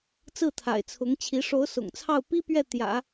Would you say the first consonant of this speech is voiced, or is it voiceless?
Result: voiceless